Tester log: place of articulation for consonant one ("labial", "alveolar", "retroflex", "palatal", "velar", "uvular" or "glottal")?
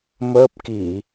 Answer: labial